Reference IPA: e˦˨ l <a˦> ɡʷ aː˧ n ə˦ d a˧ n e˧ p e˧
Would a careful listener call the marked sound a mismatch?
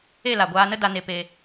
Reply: yes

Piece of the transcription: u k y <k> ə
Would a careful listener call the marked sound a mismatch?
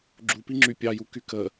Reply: no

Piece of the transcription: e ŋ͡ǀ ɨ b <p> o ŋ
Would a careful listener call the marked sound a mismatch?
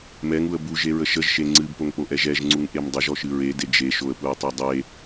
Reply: no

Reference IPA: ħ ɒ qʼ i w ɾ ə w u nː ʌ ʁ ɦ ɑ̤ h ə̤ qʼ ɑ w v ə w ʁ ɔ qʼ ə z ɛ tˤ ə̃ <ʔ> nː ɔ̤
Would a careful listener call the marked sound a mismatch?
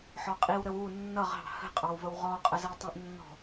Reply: no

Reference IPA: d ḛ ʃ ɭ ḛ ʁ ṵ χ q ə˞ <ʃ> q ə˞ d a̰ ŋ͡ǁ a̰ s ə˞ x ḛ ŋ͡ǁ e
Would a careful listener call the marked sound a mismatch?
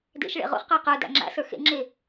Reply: yes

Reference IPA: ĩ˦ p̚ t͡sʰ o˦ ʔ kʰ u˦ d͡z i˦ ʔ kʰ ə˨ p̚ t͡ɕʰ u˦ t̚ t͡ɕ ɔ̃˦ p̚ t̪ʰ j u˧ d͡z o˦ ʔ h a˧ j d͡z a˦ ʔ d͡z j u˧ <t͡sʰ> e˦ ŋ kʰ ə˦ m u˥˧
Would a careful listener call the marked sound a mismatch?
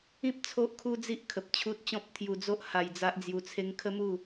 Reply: no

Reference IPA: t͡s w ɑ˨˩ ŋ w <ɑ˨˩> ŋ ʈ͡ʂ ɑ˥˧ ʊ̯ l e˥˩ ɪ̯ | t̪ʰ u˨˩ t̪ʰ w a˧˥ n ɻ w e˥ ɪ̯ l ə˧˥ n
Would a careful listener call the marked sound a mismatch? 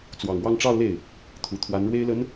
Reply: yes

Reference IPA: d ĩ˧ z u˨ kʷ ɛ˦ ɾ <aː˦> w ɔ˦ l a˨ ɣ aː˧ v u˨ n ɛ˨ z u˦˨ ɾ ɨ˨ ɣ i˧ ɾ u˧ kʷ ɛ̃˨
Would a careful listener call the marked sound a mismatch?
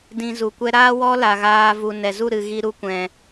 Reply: no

